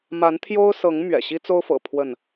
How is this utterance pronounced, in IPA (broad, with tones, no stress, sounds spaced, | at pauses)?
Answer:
m a˨˦ n t̪ʰ j o˦ ʊ̯ s ɤ˨˦ ŋ m ɥ ɛ̰˨˩ ɕ i˦ t͡s o˦ ʊ̯ f ɤ̰˨˩ pʰ w ə˥˨ n